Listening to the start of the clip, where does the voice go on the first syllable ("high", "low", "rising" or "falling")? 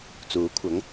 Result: rising